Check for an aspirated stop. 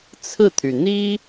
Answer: present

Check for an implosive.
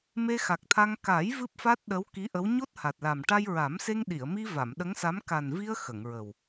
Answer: present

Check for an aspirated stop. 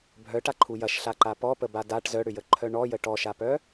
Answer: present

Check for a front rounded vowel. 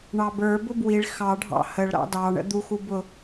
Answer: absent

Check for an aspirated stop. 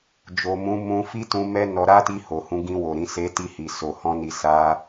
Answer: absent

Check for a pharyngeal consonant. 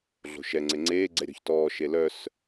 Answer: absent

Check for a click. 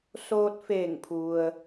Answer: absent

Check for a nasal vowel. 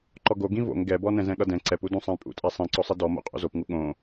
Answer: present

